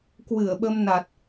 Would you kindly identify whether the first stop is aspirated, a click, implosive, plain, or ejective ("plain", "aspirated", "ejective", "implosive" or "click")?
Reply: plain